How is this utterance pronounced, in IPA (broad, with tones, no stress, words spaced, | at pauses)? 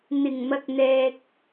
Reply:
n̪ɪ˨˩ŋ mɐ˨k̚n̪ɛː˨k̚